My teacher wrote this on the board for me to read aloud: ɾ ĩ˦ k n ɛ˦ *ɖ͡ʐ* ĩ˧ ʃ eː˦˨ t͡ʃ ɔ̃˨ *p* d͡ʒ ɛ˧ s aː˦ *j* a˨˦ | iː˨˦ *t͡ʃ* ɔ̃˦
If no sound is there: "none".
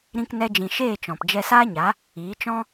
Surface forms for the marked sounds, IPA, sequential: d͡ʒ, p, ɲ, t͡ʃ

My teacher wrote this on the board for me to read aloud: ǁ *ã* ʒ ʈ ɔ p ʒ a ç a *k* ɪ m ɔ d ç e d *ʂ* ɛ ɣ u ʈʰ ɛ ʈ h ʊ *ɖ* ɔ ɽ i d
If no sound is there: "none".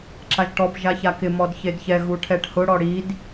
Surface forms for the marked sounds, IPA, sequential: a, k, ç, ɽ

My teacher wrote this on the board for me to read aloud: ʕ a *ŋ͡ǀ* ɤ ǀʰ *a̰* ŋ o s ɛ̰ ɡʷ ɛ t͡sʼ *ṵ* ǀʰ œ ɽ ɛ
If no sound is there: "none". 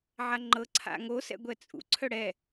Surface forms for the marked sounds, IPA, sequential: ŋ͡ǃ, a̰, ṵ

